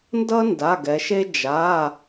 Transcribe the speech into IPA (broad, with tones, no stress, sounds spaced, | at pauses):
n d ʌ˦ n d a˩˧˩ ɡ ɛ˩˧ ʃ e˦ d͡ʒ a˩˧˩